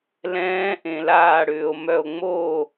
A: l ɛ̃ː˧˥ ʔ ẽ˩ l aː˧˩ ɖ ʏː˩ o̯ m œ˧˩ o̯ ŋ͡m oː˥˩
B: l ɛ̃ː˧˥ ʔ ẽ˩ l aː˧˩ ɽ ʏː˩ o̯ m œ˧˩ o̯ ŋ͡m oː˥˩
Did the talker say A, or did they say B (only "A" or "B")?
B